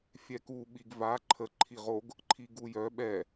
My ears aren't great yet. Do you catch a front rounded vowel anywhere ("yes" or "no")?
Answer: yes